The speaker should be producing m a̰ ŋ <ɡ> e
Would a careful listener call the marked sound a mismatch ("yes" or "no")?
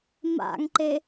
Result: yes